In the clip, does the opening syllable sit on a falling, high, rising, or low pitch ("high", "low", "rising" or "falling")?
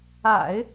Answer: low